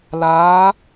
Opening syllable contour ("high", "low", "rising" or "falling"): rising